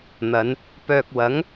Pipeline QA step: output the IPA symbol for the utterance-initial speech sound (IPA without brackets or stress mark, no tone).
n̪